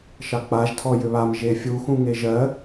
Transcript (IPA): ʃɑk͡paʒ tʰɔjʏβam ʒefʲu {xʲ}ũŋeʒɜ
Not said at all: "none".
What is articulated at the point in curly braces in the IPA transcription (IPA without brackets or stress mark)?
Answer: x